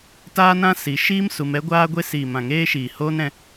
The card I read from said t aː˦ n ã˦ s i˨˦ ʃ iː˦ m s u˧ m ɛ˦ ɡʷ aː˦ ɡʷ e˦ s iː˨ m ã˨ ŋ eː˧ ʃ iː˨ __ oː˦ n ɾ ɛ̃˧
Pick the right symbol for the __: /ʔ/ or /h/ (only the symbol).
h